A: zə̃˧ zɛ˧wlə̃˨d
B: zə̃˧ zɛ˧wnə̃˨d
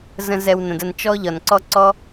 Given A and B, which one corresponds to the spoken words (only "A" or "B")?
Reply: B